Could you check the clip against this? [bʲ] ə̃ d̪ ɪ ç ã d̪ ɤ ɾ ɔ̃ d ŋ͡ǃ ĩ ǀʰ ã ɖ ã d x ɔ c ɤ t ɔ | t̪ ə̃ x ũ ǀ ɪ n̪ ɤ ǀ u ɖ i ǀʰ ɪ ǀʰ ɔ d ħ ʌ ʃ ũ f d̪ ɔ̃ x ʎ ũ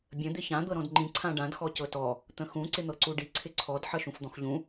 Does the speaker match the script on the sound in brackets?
yes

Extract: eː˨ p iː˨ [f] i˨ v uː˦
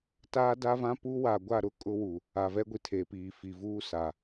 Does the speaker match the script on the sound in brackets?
yes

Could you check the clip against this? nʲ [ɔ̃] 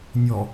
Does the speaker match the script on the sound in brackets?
no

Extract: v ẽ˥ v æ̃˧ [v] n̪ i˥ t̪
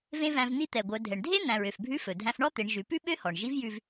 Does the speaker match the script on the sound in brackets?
yes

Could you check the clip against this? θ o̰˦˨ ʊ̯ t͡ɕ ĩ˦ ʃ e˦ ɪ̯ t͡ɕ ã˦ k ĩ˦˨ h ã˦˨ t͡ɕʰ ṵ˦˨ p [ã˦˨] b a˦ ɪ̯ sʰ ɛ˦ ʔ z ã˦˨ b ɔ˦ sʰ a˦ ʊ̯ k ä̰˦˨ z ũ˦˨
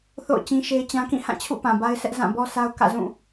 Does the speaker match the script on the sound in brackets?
no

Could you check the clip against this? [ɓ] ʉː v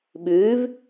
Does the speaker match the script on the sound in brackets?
yes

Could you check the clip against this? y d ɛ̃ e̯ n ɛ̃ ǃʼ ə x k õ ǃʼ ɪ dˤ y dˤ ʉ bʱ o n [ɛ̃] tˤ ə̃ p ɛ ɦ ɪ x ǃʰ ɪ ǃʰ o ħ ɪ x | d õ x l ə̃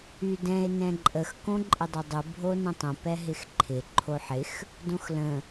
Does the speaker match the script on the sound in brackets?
no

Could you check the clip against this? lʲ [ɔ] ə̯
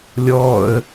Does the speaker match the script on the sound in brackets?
yes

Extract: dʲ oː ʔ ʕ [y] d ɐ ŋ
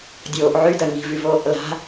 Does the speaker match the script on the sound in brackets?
yes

